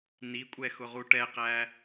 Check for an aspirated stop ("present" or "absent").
absent